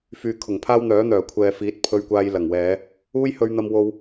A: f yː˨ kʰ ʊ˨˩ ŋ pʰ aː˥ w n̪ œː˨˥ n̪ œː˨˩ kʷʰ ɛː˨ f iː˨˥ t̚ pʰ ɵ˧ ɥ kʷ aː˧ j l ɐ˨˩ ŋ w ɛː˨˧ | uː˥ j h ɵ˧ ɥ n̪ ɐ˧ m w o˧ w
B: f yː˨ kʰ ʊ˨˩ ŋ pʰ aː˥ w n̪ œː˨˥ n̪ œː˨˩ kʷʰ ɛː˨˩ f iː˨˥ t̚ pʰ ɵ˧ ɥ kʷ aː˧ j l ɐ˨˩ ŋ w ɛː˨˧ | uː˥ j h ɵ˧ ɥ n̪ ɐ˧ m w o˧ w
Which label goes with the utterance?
A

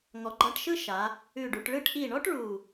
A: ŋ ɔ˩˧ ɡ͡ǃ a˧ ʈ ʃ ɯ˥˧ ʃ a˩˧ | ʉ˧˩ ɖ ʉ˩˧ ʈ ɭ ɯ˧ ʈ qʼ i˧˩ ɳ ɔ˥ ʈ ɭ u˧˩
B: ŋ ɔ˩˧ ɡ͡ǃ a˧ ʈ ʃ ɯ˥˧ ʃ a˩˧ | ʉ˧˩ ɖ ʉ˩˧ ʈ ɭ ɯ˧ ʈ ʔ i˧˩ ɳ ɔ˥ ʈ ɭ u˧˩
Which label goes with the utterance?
B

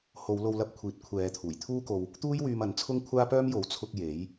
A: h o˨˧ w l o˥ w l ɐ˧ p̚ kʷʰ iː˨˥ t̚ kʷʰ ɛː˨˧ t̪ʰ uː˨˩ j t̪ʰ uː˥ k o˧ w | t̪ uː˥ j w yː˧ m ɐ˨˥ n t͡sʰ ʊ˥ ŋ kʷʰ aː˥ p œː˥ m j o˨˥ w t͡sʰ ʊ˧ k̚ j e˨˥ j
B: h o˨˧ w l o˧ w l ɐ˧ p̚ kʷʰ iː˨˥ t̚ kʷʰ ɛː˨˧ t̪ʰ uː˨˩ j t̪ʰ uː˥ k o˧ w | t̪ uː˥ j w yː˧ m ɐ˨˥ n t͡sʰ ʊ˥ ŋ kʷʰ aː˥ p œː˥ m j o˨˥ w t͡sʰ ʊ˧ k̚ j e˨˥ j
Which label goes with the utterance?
B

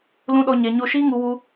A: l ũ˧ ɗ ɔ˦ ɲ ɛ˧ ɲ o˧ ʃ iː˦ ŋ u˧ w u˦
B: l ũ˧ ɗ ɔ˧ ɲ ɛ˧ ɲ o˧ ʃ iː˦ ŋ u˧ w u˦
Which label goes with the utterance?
B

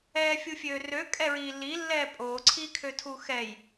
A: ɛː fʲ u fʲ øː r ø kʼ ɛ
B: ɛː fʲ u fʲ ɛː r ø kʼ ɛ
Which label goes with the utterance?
A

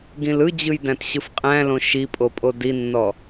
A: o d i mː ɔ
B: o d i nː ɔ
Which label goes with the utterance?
B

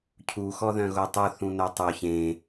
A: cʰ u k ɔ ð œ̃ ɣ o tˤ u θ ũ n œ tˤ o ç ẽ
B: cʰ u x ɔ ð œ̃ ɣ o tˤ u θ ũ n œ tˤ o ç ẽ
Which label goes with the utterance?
B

